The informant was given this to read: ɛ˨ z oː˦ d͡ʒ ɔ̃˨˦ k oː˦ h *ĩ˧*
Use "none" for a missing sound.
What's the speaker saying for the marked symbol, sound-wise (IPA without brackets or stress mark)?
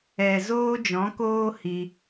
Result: i˧